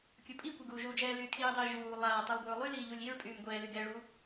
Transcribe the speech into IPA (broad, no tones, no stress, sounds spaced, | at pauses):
kʲ u pʼ i kʷ ɛ ɡ uː ʒ u d͡ʒ ɛː l yː kʰ iː dˤ iː ʒ uː lˠ aː tˤ i lˠ ɡʷ i ɹ lˠ y l iː ʎ u lʲ i ɹ pʼ yː m ɡʷ ɛː l y ɡ ɛ ɭ u